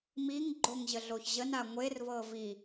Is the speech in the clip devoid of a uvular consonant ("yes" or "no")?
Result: yes